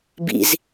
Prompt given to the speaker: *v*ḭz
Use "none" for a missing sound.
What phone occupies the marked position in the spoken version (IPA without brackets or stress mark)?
b